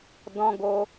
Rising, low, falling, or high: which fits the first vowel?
high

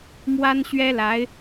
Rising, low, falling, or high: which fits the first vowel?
high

